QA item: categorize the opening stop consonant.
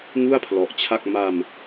aspirated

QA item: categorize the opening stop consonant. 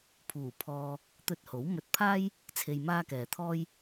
aspirated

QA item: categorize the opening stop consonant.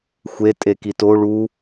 ejective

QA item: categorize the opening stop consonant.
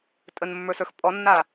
ejective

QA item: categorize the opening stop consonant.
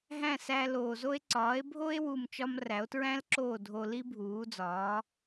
click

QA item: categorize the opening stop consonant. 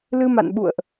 implosive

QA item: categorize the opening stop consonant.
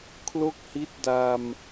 aspirated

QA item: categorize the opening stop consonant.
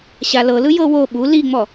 implosive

